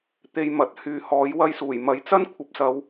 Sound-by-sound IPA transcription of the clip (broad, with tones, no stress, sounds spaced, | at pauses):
t̪ e˧ j m ɐ˨ t̚ h yː˨ h ɔː˨˥ j w ɐ˧ j s uː˨˩ j m ɐ˨˥ j t͡s ɐ˥ n kʷʰ ɐ˨˥ p̚ s ɐ˨˧ w